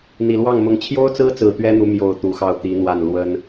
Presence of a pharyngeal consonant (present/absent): absent